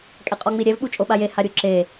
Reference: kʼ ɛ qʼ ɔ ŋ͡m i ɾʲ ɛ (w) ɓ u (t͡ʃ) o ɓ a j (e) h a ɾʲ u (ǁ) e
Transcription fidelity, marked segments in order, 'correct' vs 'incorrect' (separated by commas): incorrect, incorrect, correct, correct